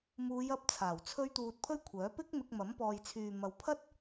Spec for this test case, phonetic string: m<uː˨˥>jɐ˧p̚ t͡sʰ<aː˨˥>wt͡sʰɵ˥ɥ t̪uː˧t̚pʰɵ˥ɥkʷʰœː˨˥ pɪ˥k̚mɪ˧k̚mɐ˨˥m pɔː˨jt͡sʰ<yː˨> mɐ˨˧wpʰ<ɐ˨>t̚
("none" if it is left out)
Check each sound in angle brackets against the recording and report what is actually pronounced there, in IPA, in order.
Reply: uː˨˧, aː˨˩, yː˨, ɐ˥

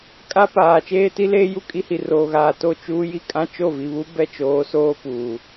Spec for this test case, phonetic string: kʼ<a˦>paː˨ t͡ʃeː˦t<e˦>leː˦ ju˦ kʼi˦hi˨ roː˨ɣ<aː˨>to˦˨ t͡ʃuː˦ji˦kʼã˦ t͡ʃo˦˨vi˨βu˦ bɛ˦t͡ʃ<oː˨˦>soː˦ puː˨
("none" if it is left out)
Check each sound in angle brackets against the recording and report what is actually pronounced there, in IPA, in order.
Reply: a˦, i˦, aː˨, oː˨˦

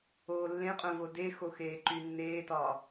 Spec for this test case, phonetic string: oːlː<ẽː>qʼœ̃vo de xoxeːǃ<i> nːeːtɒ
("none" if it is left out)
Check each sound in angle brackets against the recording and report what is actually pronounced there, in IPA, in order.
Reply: ẽ, y

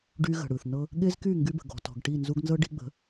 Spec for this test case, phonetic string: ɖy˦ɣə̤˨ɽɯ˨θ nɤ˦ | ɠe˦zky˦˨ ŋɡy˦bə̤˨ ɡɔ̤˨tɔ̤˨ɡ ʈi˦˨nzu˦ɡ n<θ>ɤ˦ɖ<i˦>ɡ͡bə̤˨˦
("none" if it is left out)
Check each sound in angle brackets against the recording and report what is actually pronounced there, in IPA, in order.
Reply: z, i˦

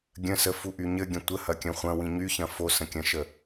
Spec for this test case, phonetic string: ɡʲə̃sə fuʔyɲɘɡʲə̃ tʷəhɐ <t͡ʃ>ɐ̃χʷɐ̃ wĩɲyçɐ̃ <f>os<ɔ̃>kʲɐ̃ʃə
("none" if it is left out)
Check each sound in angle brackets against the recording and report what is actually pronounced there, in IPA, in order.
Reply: kʲ, f, ə̃

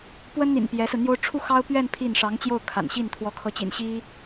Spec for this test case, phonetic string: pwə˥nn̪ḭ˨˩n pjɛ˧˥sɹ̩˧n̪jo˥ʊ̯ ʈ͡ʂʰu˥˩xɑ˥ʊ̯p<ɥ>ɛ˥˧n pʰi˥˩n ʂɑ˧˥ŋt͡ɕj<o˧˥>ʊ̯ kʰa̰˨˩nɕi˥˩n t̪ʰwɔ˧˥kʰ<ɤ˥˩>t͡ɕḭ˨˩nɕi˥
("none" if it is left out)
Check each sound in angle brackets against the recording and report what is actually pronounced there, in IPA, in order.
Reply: ɥ, o˥˩, ɤ˧˥

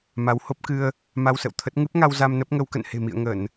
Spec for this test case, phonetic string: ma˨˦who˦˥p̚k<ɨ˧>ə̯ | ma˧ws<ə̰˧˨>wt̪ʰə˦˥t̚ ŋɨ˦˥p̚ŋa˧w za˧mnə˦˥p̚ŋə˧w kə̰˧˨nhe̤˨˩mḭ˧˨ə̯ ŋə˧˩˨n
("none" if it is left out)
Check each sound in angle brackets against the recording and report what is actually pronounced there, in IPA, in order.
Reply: ɨ˧, ə̰˧˨

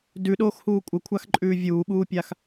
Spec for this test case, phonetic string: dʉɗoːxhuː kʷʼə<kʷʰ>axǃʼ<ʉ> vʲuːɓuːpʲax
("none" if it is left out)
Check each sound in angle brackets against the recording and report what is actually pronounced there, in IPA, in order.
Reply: kʷʰ, ʉː

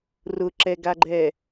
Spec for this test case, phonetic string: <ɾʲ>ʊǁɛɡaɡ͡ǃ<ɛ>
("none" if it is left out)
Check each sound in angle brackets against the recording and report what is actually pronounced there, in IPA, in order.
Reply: r, ɛ

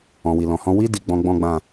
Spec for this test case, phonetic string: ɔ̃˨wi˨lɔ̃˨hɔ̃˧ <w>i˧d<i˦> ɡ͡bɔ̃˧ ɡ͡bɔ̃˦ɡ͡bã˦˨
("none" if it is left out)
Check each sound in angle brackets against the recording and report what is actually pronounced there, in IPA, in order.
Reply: w, i˨

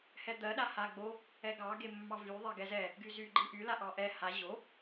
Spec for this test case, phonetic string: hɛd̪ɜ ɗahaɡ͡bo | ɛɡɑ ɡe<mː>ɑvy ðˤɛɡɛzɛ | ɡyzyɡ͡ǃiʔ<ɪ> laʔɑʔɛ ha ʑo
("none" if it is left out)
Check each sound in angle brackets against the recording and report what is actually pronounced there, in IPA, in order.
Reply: mː, y

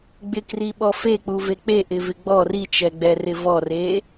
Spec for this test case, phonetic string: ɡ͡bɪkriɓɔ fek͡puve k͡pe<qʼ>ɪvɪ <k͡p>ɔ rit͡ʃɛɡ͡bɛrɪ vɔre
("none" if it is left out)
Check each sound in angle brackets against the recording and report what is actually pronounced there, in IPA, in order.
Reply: ʔ, ɡ͡b

